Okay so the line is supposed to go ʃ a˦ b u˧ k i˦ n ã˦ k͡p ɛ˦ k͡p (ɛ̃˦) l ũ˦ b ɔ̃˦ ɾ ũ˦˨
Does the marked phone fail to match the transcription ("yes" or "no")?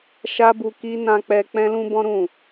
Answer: no